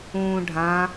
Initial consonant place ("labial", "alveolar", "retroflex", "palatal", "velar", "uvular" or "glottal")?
retroflex